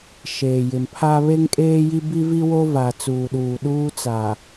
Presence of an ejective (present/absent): present